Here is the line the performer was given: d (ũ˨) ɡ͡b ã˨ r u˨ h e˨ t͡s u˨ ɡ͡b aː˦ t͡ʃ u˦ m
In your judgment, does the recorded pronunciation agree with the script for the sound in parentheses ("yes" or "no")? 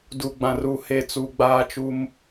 no